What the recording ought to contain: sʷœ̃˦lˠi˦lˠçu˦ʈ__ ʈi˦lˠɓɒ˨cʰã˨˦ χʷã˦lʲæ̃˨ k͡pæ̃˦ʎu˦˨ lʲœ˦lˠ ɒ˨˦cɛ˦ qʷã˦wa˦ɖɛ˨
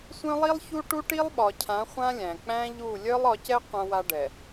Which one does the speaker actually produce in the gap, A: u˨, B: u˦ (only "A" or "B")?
B